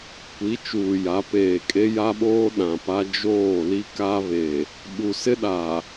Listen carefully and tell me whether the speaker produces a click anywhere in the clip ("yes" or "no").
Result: no